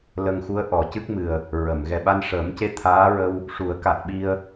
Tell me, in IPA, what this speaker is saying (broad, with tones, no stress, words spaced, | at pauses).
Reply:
lə˧ŋxu˧˥ə̯ ʔɔ˨˩˦cɨ˦˥k̚mɨ˨˩ə̯ | ɹə˨˩˨m ɣɛ˨˩ɓa˧nʂəː˨˩˦mce˧˥ t̪ʰaː˧˥ɹə˧w | ʂu˨˩˦ə̯ka˨˩t̚ɓi˧ə̯